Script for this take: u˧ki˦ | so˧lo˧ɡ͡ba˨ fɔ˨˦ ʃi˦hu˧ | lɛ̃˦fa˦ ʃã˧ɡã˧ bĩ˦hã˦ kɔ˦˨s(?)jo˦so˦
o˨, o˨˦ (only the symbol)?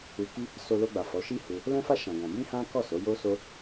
o˨˦